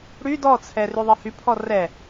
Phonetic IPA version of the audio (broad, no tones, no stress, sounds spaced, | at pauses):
ɽ y d ɔ t͡sʰ ɛ r y ðˤ i h y pʰ ɔ r ɛ